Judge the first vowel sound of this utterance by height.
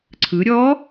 high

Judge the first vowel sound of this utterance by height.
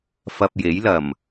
low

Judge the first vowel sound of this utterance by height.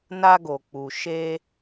low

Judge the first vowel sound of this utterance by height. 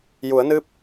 high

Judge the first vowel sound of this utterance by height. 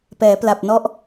mid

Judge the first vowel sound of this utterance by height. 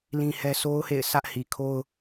high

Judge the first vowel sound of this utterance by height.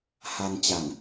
low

